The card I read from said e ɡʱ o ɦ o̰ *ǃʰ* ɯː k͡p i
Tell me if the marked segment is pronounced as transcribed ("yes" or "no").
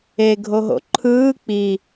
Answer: yes